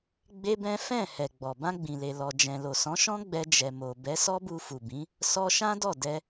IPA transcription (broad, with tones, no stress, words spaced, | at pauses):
ɡ͡be˦bɛ̃˦ fɛ̃˦˨ hɛ˨ɡ͡bɔ˨ bã˧ɡ͡bĩ˨le˨ lɔ˨d͡ʒɛ̃˨lo˨ sɔ̃˨˦ʃɔ̃˦ɡ͡bɛ˧ d͡ʒɛ˨mo˨ bɛ˨˦sɔ˦bu˧fu˨ bĩ˨˦ | sɔ˧ʃã˦ dɔ˦˨dɛ˧